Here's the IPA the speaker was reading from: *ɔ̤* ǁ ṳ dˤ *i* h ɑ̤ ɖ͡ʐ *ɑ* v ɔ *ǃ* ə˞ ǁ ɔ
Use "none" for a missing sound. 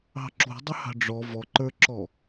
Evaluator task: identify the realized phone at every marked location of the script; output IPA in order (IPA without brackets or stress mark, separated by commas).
ɑ̤, ɪ, ɔ, ǃ